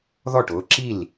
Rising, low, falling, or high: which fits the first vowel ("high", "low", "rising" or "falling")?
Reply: falling